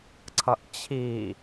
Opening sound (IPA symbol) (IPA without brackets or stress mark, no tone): ǀʰ